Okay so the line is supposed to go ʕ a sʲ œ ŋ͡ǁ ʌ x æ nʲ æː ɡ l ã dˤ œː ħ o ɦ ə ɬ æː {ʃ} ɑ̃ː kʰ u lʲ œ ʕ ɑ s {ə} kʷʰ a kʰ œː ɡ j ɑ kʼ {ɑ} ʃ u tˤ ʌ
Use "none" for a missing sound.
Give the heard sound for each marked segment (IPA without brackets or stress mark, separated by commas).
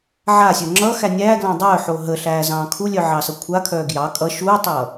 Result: z, ʌ, ʌ